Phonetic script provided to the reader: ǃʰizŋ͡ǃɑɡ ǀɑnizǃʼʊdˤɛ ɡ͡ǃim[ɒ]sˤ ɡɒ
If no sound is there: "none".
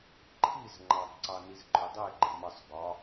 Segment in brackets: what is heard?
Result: ʌ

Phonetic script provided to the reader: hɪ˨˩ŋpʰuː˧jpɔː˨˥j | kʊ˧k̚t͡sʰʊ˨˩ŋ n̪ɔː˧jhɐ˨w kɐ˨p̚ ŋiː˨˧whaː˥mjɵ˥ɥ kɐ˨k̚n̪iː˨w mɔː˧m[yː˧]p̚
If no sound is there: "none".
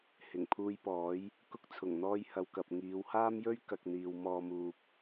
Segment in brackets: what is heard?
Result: uː˧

